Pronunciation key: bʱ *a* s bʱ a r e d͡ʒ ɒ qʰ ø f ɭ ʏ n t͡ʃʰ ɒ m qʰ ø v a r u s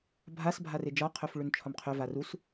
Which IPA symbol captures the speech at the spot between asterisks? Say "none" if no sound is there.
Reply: a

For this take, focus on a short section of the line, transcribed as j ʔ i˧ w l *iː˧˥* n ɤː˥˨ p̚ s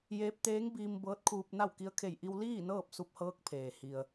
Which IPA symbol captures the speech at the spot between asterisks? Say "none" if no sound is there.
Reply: iː˥˨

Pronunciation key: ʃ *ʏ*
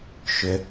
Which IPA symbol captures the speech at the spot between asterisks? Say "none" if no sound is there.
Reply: ʏ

